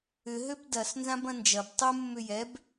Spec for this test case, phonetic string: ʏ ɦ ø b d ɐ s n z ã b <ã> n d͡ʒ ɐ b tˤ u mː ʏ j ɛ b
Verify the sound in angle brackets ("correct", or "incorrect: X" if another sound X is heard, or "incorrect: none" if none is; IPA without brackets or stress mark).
incorrect: ɐ̃